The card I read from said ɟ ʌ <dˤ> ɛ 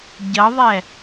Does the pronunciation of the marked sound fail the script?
yes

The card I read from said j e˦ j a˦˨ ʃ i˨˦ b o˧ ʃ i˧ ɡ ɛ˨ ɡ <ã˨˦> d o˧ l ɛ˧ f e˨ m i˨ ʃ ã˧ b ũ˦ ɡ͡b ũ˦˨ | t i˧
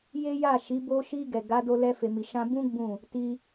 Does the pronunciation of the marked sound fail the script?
yes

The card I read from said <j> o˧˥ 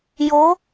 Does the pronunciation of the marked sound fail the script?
no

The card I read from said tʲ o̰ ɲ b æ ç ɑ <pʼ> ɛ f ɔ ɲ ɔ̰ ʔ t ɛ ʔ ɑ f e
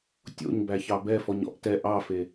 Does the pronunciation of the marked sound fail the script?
yes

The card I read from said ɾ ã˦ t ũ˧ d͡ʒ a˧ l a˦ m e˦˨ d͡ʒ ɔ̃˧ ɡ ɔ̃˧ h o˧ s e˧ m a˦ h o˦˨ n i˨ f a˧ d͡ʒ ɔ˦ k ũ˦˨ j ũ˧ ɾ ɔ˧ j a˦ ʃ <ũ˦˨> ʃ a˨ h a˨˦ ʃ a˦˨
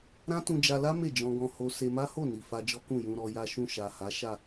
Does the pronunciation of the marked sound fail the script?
no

